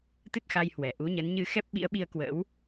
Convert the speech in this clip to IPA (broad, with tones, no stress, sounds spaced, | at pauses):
t̪ ɨ˦˥ t̚ x a˧ j h w ɛ˧˩ ʔ u˨˦ ɲ ə˨˦ n ɲ ɨ˧ x ɛ˦˥ p̚ ɓ ḭ˧˥ ə̯ ɓ i˧ ə̯ k w ə̰˧˥ w